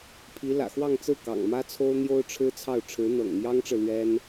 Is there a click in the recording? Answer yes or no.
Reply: no